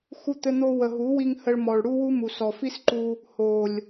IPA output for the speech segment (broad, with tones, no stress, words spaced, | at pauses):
xu˧t̪ɘ˧n̪o˧ wə˨ɦu˨˦wi˧ŋ hə˧ɭmɔ˨ɭɽu˦wu˦ mu˨sɔ˨fi˦sǃu˧ | ho˨lʲ